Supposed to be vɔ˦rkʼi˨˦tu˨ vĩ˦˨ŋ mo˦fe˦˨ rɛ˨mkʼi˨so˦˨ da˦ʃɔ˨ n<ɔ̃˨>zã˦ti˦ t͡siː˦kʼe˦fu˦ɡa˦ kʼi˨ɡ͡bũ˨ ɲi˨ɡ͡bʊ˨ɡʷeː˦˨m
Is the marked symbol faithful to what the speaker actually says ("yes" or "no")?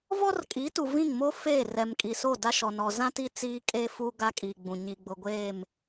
no